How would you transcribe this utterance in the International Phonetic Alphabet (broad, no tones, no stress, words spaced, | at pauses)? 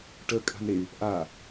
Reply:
ʈə kʼa̤nɾey̯ | ʔa